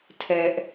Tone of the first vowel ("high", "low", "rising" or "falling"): high